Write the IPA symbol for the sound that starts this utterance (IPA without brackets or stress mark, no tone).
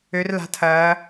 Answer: ø